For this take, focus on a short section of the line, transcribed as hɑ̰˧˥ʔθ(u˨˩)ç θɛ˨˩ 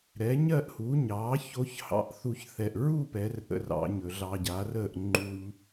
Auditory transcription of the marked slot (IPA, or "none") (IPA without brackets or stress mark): u˧